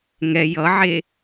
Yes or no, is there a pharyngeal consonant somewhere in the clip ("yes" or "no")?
yes